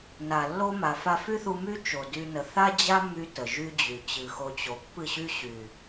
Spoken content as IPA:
n a˨ lː o˦ m a˨ f a˧ f y˦ θ u˧ m y˦ t͡ʃ o˨ d y˧ n ə˨ θ a˦ d͡ʑ a˦ mː y˧ t ə˨ ʒ y˦ d͡ʑ y˨ t͡ɕ ɨ˨ x o˧ t͡ɕ o˨ pː ɨ˦˨ ɕ y˦ ɕ y˨

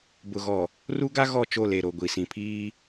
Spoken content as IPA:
b ʊ˨ ɣ ɔ˨ | r u˦ ɡ a˦ ɣ ɔ˦˨ t͡ʃ o˦˨ l e˨ ɾ o˨ ɡʷ i˨ s ĩ˨ pʰ iː˦

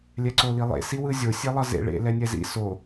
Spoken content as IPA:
lʲ ɛ ǀ o l i lˠ ḛ s i w ɯ zʲ o sʲ e lˠ ʌ z ḛ ɭ ḛ l ɛ nʲ ɛ z ḭ s o

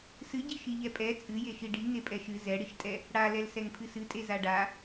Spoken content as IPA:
s ɨ ɟ i ʃ i ʎ ɛ pʼ ɛ t͡sʼ ɨ j e ʃ i ɖ i ŋ e pʼ ɛ ʃ ɨ z ɛ ɽ i ʃ tʼ ɛ | ɽ a l ɛ l s ɛ ŋ pʰ ɨ s ɨ tʼ e z a ɖ a

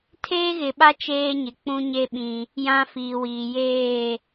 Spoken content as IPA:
tʰ eː˦ ɣ ɪ˨ ɓ a˦ t͡ʃ eː˦ ɲ ɪ˨ k͡p ũ˦ ɲ e˦ ɓ ĩ˦ | j ã˦ f iː˨ w iː˨ j eː˦˨

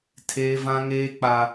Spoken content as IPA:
tʰ eː˦ v ã˦ ŋ eː˦ k͡p a˦

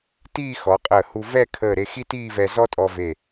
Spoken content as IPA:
t iː˥˧ x ɔ˩˧ qʼ əː˧˩ h u˧ v ɛ˥˧ kʰ əː˧˩ ɾ e˧ x i˥ t iː˥˧ v ɛ˧ z ɔ˥ tʼ ɔ˧ v e˧˩

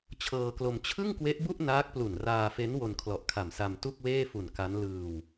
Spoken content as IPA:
t͡ɕʰ ɤː˧ k l o˧ m t͡ɕʰ ɯ˥˩ ŋ k w e˦˥ ʔ b u˥˩ ʔ n aː˦˥ k̚ p l u˨˩ n r aː˧ f e˦˥ n w o˧ n kʰ l ɔ˨˩ ʔ kʰ a˨˩ m s a˧ m t u˥˩ k̚ w eː˥˩ f u˨˩ n k a˦˥ n l ɯː˧ w

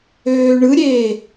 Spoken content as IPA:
øː ɳ ɯ ɾʲ eː

